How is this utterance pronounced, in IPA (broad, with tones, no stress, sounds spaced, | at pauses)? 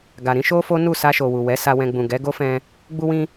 ɡ a˨ ɾ ĩ˨˦ ʃ o˦ f o˦ n u˦˨ s a˧ ʃ o˨ w u˨ w ɛ˨˦ s a˧ w ɛ̃˧ ɡ͡b ũ˨ ɡ ɛ˨˦ ɡ o˦ f ɛ̃˧ | ɡ͡b u˧ w ĩ˧